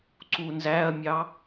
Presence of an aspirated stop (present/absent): absent